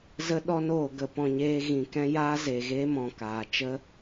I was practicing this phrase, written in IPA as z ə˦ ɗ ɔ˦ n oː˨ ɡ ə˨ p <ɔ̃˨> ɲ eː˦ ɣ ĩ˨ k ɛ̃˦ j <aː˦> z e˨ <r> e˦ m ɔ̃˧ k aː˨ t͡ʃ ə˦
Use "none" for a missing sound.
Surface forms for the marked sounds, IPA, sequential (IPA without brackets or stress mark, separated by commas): ɔ̃˧, aː˦, ɣ